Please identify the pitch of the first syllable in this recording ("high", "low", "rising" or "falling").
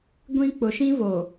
high